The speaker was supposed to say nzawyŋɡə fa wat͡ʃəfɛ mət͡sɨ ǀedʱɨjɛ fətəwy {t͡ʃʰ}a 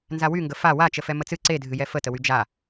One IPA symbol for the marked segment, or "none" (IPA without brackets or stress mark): d͡ʒ